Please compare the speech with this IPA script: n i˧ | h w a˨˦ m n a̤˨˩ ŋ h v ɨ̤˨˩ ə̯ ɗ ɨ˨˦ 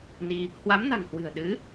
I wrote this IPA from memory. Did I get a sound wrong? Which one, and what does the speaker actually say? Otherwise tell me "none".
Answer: v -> w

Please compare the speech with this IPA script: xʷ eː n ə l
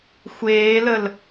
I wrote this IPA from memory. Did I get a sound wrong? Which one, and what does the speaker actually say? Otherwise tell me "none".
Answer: n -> l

